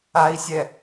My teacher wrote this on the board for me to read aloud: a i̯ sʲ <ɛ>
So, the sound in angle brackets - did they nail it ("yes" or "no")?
yes